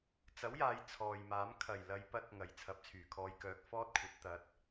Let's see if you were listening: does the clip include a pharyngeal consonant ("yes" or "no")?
no